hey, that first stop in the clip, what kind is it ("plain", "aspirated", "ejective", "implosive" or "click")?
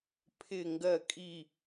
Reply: aspirated